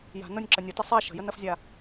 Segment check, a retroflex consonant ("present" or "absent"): absent